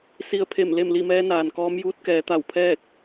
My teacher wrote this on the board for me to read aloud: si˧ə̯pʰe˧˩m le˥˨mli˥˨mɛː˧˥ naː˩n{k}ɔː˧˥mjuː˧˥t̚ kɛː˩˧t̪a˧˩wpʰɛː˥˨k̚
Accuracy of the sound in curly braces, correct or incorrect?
correct